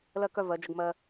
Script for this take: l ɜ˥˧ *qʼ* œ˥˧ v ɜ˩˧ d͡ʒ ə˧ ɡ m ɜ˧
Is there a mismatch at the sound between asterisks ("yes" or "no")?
yes